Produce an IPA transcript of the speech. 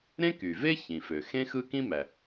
ɾẽ˥ky˩ve˥ çĩ˩fø˩xẽ˥ xɯ˥kĩ˥mæ˩

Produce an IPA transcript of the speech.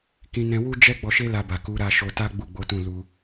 kĩ˧nɛ̃˧ wu˦d͡ʒɛ˦ ɡ͡bɔ˧ʃe˦la˧ba˨ ku˨˦ɾa˧ʃo˧ta˦ ɡ͡bu˦˨ɡ͡bo˨˦tũ˦˨ lu˧

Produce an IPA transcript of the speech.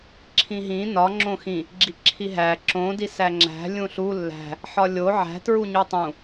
ǁʰĩɦĩ nɒ ŋ͡ǁõxĩ | ɡ͡ǁiǁʰiɦæ ǁõ disæŋ͡ǁæ̤ lʲũɬu lːæ̤ | ħɒlʲo ʕæ̤ tɹuɲutˤũ

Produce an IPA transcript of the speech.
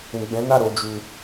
ũ˨ɡ͡bɛ̃˨˦na˦˨ ɾo˨˦d͡ʒu˧

